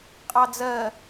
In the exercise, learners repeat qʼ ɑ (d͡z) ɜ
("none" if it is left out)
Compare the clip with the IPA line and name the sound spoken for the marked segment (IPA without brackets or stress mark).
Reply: d͡z